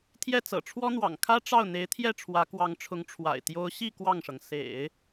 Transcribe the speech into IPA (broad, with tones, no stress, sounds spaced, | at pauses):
t̪ʰ j ɛ˥˩ t͡s ɤ̰˨˩ ʈ͡ʂʰ w ɔ˥ n̪ w ɑ̰˨˩ ŋ kʰ ä˥ ʈ͡ʂ ɑ˥˩ ʊ̯ n̪ e˧˥ ɪ̯ t̪ʰ j ɛ˥˩ ʈ͡ʂʰ w ä˧˥ k w ɑ˧˥ ŋ ʈ͡ʂʰ ʊ˧˥ ŋ ʈ͡ʂʰ w a̰˨˩ ɪ̯ t̪ j o˧˥ ʊ̯ ɕ i˥˧ k w ɑ˥˩ ŋ ʂ ɤ˩ ŋ s ḛ˨˩˦ ɪ̯